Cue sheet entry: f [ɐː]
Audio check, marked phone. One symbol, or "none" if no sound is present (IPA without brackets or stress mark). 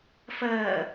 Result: ɐː